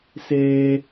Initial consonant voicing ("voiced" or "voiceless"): voiceless